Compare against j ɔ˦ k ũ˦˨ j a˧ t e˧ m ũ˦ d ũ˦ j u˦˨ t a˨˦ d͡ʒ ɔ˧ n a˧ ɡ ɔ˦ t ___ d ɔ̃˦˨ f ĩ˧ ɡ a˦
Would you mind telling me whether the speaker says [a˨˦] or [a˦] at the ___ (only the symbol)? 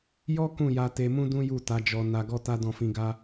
a˦